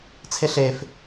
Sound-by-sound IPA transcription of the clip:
t͡sʰeɬef

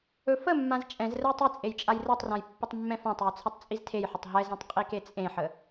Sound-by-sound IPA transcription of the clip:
ɵfəmːãz t͡ʃʼɛ̃z rəjtˤit͡sʼej t͡ʃʼajrɛtˤrãj pːətˤmːɛ̃fãtˤjɵ t͡sʰɛtˤt͡sʼiztʰejħətˤ ɦɛzɛ̃tˤ qʼiket͡sʼẽħə

